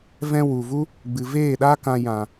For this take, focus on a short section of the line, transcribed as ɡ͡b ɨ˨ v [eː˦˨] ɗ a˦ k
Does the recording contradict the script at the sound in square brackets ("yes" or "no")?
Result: no